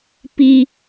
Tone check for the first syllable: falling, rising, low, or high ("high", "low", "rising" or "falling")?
high